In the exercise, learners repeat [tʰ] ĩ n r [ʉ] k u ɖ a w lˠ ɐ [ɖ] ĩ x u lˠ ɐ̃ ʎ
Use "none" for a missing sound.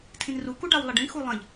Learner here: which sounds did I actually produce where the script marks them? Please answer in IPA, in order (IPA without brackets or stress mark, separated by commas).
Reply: tʰ, u, ɖ